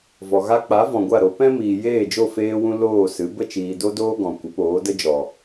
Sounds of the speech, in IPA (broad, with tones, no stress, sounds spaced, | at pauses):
v ɔ˨ ɣ a˦ k͡p a˨˦ v ɔ̃˨ ɡʷ a˦˨ ɾ o˨˦ p ɛ̃˦ m iː˨ j eː˦˨ d͡ʒ o˦˨ f eː˦ w ũ˦ l oː˦˨ s ɨ˨˦ b ə˦˨ t͡ʃ iː˨ d o˦ d oː˦ ɡ ɔ̃˨ kʷ ə˨˦ p oː˨˦ d ə˦ d͡ʒ ɔ˨